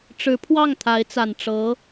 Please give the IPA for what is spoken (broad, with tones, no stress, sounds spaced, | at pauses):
ʈ͡ʂ ɻ̩˧˥ pʰ w ɑ˥˩ ŋ t̪ʰ a˧˥ ɪ̯ t͡s a˨˩ n ʈ͡ʂ ɤ˧˥